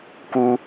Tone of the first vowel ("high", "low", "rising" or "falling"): high